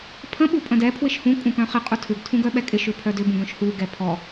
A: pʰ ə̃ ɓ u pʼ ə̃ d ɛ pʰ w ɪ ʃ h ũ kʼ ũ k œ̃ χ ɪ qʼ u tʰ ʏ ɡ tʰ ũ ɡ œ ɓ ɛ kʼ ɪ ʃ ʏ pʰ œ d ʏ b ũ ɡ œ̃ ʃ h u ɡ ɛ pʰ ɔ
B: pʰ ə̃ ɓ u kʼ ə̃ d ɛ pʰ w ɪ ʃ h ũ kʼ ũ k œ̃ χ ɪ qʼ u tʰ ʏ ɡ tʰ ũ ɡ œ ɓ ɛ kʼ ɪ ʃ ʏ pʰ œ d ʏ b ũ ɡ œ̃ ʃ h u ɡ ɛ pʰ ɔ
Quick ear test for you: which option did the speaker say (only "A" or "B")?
A